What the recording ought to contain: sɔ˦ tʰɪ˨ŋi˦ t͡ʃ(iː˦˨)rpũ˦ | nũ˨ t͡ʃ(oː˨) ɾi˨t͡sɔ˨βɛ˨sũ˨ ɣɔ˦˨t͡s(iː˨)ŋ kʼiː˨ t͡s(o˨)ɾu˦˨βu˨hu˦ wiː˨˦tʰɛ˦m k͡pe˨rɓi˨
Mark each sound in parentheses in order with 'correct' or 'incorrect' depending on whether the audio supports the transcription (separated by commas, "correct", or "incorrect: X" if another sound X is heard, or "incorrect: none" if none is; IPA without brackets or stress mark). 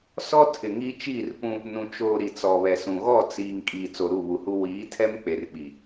correct, correct, correct, correct